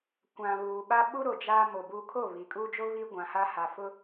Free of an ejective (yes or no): no